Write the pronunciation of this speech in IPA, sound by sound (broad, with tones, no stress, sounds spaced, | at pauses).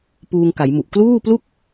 p uː˧ ŋ k a˩˦ j m u˨˩ ʔ k l uː˥˩ p l u˥˩ k̚